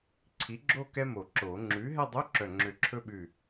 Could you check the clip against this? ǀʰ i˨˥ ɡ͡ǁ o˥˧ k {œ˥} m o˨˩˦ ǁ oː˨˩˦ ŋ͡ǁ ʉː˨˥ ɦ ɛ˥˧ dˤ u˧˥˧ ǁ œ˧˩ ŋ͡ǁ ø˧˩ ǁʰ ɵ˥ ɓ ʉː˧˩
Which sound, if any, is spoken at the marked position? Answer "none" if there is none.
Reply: ɛ˥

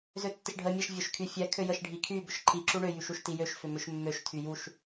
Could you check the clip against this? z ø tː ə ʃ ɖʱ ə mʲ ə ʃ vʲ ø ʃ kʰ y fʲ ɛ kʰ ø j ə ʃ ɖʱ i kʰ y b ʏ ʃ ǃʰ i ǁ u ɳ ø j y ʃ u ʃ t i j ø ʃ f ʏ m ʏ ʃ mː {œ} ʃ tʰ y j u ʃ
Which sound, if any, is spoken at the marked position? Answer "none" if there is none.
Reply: ø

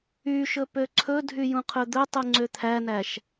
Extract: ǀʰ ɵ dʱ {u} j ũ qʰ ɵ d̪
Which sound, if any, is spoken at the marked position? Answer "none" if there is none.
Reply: y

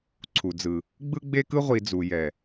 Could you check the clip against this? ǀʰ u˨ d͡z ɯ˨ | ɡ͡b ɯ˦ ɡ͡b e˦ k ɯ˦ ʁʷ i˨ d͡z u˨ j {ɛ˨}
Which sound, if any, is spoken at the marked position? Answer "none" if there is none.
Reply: ɛ˨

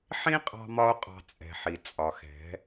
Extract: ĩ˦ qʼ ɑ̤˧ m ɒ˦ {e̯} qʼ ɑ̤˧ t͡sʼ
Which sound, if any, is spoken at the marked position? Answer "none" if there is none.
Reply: o̯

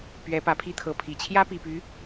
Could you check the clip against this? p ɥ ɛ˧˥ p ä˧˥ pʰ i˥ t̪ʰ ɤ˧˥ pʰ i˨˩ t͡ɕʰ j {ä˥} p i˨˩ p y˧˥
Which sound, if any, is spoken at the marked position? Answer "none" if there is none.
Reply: ä˥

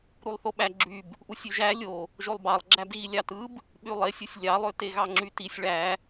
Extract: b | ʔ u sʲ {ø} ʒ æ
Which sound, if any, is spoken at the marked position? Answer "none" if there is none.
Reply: y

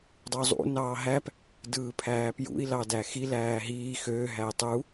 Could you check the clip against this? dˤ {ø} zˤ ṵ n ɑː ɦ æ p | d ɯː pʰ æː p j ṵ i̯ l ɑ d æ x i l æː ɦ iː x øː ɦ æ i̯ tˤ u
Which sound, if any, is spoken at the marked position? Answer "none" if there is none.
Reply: u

